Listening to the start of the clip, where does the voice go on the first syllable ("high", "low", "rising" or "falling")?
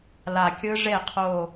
low